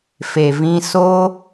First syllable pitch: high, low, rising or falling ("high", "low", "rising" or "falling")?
low